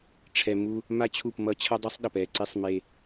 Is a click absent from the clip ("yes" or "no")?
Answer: no